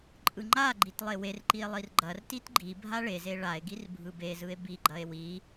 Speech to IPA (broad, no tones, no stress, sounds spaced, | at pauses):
ǃʼ ɯ ŋ͡ǃ a ɡ͡ǃ i t lˠ e w e r ǃ i e̯ lˠ i r ɡ͡ǃ ɐ r t i t ɡ͡ǃ i bʱ a ɭ e z e ɭ a e̯ ɡ i r bʱ ɯ b e z ɯ e̯ b i ɡ͡ǃ ɐ e̯ w i